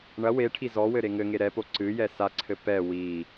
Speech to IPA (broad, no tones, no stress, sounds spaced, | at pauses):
ɳ ɐ w e ʈʰ i z ɔ w ɘ ɾ e ŋ ɘ ŋ e ɾ ɛ p o ǀ ɨ j ɛ s a ǀʰ ɘ p ɛ w i